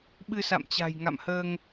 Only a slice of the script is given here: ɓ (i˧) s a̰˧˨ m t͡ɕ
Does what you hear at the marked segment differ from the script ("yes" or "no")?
yes